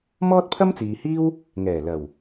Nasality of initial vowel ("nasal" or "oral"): oral